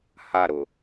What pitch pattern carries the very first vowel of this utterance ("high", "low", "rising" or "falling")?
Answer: falling